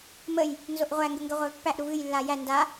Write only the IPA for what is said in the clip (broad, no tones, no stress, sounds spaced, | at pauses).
m ə j | n z o ʔ ʁʷ æ ŋ ɡ ə ŋ ɡ ə ʁʷ æ v pː æ ʔ ɾ u v ɨ j lː a j æ n d a